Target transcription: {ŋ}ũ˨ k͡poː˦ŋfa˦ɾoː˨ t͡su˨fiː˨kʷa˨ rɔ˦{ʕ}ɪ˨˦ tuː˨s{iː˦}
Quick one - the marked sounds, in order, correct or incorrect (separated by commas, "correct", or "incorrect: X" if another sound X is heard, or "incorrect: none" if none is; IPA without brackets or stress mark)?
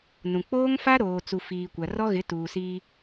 incorrect: n, incorrect: ɣ, correct